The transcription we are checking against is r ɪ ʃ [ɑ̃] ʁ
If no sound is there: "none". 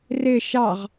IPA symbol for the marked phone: ɑ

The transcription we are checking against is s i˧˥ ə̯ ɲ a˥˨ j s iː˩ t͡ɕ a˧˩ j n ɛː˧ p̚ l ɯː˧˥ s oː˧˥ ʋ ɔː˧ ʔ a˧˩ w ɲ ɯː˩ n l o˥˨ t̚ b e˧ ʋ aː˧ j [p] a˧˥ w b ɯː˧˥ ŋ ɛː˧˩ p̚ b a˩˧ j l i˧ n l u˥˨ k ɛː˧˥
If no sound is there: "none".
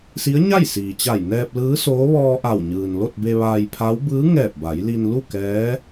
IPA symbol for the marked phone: pʰ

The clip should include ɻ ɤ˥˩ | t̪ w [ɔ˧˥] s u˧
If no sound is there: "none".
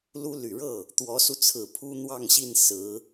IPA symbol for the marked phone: ɔ˧˥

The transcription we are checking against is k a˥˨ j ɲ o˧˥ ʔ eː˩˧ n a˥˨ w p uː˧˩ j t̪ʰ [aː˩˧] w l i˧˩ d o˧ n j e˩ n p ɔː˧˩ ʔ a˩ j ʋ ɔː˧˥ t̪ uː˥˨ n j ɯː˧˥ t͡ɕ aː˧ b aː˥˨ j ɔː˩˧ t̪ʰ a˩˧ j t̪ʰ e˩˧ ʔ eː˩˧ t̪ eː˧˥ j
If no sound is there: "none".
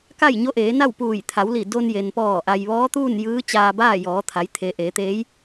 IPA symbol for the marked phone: a˩˧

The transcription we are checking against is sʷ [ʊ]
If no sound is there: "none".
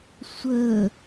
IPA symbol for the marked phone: ə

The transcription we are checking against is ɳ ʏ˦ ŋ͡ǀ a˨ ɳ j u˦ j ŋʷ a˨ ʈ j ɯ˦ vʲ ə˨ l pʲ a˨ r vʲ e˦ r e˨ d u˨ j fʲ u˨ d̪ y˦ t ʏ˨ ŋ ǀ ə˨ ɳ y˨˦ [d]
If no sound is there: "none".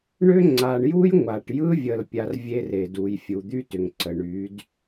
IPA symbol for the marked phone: d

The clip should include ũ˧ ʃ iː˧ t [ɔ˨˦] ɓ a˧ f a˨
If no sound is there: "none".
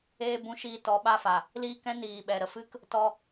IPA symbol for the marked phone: ɔ˨˦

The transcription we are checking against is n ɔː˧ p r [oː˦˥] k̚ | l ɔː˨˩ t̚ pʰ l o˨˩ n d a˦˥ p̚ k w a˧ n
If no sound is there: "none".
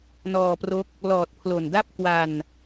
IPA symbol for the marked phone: o˦˥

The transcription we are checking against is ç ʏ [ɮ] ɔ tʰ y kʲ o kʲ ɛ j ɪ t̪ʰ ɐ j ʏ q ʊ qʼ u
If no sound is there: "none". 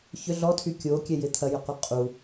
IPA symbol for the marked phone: ɮ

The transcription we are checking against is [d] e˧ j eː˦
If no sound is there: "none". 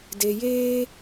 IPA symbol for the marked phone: d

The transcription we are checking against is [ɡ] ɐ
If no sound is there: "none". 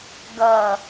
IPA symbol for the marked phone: ɡ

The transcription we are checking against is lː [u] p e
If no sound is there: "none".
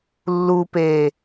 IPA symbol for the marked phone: u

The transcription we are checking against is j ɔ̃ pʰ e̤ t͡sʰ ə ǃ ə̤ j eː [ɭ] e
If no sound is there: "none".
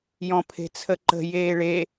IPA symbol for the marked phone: ɭ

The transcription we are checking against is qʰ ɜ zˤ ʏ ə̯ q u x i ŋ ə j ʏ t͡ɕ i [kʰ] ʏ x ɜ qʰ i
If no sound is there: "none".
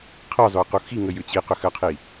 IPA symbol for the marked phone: q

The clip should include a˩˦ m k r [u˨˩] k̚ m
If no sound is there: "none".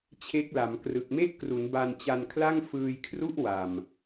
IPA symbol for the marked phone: ɯ˨˩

